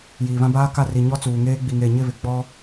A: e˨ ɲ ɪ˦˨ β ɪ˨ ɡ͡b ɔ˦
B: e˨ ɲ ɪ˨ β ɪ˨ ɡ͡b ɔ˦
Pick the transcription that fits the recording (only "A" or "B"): A